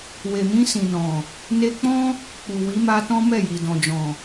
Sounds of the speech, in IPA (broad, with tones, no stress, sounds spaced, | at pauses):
w e˨ m ĩ˧ s ĩ˨ n ɔ̃˨ | n e˧ k͡p ɔ̃˦ | k͡p u˨ w i˨˦ m a˧ t ɔ̃˦ m ɛ˦˨ j i˨ d ɔ̃˨ d͡ʒ ɔ̃˨